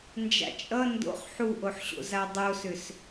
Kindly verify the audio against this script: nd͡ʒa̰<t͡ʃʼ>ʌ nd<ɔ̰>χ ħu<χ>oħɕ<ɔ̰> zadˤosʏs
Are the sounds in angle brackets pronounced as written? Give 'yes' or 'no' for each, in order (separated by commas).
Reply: yes, no, no, no